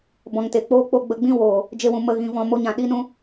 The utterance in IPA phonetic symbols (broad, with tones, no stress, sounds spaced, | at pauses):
b ɔ̃˨ ŋ t e˨ k͡p oː˦ k͡p o˦˨ ɡ͡b ə˧ ɡ͡b ĩ˦ w oː˨ | d͡ʒ e˧ w ũ˨ m ə˧ ɣ ĩ˧ v ɔ̃˧ m o˧ ɲ ã˨ ɗ i˦ n ũ˦